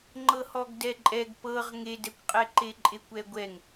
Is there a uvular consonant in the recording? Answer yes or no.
yes